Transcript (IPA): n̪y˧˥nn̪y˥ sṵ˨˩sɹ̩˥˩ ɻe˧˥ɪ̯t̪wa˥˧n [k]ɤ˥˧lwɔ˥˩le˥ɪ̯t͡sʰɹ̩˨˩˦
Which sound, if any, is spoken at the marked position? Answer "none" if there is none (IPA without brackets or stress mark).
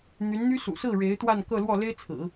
k